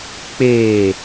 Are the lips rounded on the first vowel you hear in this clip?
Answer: no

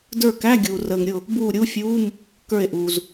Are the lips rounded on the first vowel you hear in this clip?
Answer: no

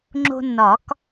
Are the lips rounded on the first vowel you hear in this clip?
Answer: yes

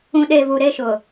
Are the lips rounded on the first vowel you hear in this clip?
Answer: yes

